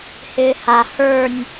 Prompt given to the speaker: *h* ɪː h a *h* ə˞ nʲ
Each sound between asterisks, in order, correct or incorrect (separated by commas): correct, correct